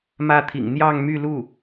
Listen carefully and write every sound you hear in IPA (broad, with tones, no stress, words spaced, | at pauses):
mä˥˩t̪ʰḭ˨˩ŋ n̪jɑ˥˧ŋmy˥˧lu˥˩